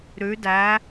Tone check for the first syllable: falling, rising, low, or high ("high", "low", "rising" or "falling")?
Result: rising